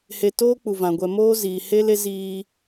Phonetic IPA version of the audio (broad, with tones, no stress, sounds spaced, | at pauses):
h e˨ t oː˦ k͡p u˨ v ã˨ ɡʷ ɛ˨ m oː˦ z iː˨ h e˦ l e˦ z iː˦